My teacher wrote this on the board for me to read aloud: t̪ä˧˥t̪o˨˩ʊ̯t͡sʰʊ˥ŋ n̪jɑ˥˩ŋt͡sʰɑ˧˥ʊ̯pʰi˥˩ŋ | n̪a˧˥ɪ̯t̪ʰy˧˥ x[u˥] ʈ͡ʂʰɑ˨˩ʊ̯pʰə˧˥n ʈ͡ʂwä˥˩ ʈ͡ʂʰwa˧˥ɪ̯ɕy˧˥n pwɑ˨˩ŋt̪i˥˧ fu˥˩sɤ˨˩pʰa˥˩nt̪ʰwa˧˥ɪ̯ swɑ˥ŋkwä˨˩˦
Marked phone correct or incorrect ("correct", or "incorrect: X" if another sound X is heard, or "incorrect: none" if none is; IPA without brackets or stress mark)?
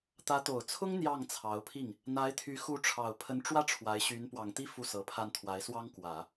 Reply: incorrect: u˧˥